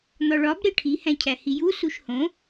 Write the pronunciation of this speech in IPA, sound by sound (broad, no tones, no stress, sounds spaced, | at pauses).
n̪ ɒ ɭ ɒ b ɾ e ʈʰ i h æ̃ cʰ æ h i j u s u ʃ h õ